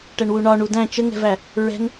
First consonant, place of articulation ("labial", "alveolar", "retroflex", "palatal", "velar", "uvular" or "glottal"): retroflex